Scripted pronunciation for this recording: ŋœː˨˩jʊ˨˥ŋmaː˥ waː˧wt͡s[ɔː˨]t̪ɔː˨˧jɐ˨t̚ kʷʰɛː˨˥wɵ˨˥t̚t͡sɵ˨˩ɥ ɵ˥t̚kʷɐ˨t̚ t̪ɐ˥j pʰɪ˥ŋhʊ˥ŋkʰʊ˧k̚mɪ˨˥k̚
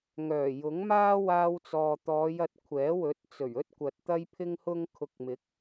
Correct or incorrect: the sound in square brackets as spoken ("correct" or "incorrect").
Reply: correct